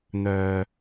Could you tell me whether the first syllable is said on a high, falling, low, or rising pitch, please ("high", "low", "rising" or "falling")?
low